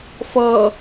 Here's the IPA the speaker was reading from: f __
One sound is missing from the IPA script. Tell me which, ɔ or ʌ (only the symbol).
ʌ